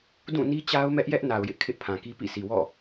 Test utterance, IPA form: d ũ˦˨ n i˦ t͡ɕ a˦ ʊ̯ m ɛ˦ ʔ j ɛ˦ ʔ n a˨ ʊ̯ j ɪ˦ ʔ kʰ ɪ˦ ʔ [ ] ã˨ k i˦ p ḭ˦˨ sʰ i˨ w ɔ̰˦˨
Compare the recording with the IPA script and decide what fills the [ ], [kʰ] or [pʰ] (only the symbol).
pʰ